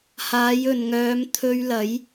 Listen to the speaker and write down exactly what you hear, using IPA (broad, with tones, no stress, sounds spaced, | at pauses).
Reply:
h aː˨˧ j ɵ˨ n ŋ œː˨˧ m t̪ʰ ɵ˧ ɥ l ɐ˨˥ j